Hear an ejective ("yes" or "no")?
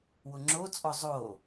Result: yes